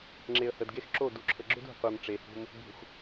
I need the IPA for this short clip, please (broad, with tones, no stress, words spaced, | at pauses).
ŋ͡ǁe˨ə̯hə˨dɡe˦x ǁo˦˨ du˨ǁʰə˨ɡ͡ǁʏ˦dṳ˨ qʷe˨mʈ͡ʂe˨hṳ˦m | bṳ˨x